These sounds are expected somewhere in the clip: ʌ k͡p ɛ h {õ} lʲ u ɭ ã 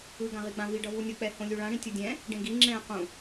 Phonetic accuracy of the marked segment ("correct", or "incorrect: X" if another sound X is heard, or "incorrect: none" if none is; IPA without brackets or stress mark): correct